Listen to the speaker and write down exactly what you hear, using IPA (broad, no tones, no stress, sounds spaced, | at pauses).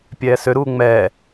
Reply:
pʲ ɛː s ø ɾ uː ŋ͡m ɛː